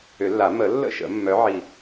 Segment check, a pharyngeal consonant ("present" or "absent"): present